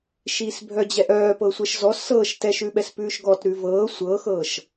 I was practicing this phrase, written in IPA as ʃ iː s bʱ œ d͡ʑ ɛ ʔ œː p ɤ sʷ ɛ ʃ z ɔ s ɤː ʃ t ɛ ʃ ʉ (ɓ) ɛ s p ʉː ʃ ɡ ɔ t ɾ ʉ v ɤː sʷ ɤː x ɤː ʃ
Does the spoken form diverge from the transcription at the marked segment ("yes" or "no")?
no